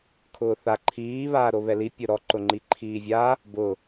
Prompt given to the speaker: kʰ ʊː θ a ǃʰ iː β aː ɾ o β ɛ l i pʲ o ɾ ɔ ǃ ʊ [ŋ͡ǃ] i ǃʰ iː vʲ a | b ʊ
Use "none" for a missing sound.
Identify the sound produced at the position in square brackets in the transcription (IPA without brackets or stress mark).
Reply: ŋ͡ǃ